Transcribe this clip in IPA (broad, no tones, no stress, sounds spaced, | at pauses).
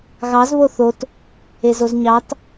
ɣ ɑ z β o θ o t | e z o z ɲ ɑ t